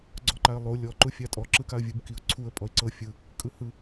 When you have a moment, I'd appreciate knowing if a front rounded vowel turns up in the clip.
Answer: no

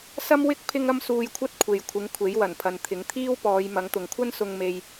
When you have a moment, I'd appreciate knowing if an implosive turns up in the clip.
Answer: no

